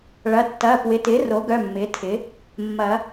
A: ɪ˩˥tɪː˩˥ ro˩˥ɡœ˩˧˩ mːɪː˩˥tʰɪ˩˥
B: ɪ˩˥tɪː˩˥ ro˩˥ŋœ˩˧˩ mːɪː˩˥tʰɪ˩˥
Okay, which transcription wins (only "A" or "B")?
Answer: A